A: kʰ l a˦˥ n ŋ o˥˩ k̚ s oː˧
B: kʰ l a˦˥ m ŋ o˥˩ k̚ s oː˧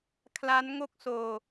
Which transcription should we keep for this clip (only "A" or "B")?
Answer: A